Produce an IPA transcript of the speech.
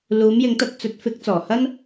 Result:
luː˨˧mjɪ˨˧ŋt̪ɐ˧t̚ t͡sɵ˨˥t̚fɪ˨˥k̚ t͡sɔː˨˩hɐ˥n

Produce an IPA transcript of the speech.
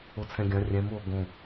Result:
ot͡sʰɛ̃ɡʲɐ̃ rʲɛ̃m o ɡõ

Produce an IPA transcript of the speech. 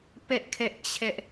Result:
pɛ˦ʔ kʰɛ˦ʔt͡ɕʰɛ˦ʔ

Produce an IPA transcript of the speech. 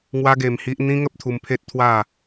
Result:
ŋwa˦ɡe˧mhi˦ʔ n̪ĩ˦ŋə˦p̚t̪ʰu˧mpʰe˦t̚ t̪ʰwa˥˧

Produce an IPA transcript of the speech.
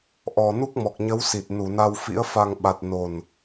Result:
ʔɔ˨˩ nu˦˥k̚mɔ˨˩k̚ɲə˨˦wsi˨˩t̚ nu˧˩na˧wfḭ˧˥ə̯ fa˧ŋɓa˨˩t̚ no˨˩n

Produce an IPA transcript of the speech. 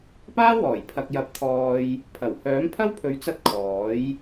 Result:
paː˥wɔː˨˩j pʰɐ˨k̚jɐ˨˥p̚t̪ʰɔː˨j | pʰɐ˨˩w hœː˨˥mpʰɐ˥wpʰɵ˨˥ɥt͡sɐ˧t̚ kʰɔː˨˥j

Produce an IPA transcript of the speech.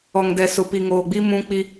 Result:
ɔ˨ŋdɛ˨ sʊ˨pi˨ ŋoː˨ɡ͡bi˦ mũ˦ k͡pi˦

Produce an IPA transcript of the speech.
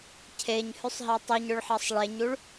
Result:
cʰeɲhʉsˤɦɛ tˤuɲɵɭħɑsˤ ɭeɲuɭ

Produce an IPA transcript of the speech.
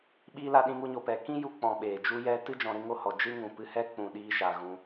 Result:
ɓi˧ la˧ɗĩ˧ŋu˧ ɲo˨pɛ˨ kĩ˦ ju˧ k͡pɔ̃˨ ɓeː˨d͡ʒu˦jɛ˦ tɨ˦ d͡ʒɔ̃˧ɾɨ˦ŋo˦hɔ˨ d͡ʒɨ˦ŋũ˨ pɨ˧hɛ˦ k͡pũ˨ɗiː˧ʃaː˨ ɣũ˧

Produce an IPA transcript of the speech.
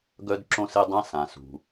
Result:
ɡœ˥dǁõ˥se˥dˤã˥ sã˩sṳ˩

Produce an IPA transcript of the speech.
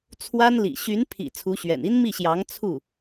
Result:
t͡sʰwa˥nlḭ˨˩ ɕy˧˥npʰḭ˨˩ t͡sʰu˧˥ɕɥɛ̰˨˩n i˥nmi˥˩ɕjɑ˧˥ŋ t͡sʰu˥˩

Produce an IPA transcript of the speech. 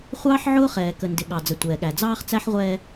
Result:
χʷɑː˦ħ ʕʊː˦χɛː˨ kə˨ndɪ˨ ɠɑ˨d͡zə˨ tʷɛː˨ɠæ˨ d͡zɑː˦χt͡sæ˦ħ ʁʷɛː˦

